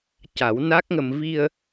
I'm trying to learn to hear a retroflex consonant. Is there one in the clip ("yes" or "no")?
no